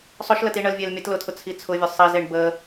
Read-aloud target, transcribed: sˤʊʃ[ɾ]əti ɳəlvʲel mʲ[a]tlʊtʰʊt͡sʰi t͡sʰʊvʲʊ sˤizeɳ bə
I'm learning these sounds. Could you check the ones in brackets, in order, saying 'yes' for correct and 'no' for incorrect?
no, no

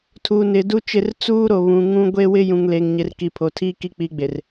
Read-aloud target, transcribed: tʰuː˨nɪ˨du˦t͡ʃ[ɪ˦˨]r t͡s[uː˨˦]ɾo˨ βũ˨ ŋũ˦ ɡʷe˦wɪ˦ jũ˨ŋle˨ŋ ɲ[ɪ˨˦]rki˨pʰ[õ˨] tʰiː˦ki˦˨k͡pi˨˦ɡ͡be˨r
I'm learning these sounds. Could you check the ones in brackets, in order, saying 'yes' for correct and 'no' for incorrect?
yes, no, yes, no

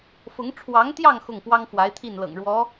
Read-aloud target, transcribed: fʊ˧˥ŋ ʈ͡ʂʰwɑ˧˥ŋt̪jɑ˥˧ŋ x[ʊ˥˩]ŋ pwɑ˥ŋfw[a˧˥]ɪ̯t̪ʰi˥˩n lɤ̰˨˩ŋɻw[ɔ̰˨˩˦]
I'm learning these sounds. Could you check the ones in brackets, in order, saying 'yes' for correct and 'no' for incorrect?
yes, yes, no

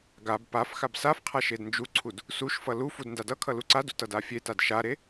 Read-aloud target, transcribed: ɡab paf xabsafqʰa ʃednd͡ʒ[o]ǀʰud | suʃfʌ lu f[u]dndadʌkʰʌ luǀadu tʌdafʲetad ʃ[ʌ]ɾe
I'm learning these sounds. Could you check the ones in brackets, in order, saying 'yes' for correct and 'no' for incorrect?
no, yes, no

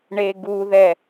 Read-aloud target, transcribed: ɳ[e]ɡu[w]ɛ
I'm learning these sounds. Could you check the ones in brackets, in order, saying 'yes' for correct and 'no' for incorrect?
yes, no

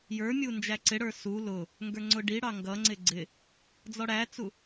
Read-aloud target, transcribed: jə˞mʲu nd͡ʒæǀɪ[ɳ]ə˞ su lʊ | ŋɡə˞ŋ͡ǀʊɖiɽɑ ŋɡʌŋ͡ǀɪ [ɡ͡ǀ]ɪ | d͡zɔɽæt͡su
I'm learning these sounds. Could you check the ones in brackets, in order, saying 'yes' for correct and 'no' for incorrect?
no, yes

